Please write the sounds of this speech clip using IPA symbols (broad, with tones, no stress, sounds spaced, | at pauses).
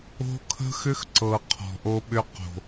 o̤˦ kʰ ə̤˦ x ʏ˦ x ǀ ɤ˨ qʰ ɔ̤˨ ʔ o˦ ɓ ʏ˦ q o̤˨